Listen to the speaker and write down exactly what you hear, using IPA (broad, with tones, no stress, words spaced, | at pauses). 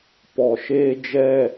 pɔ˨ʃeː˦ d͡ʒɛ˦˨